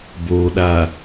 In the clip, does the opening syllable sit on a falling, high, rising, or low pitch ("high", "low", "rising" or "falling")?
low